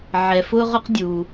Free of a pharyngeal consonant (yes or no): no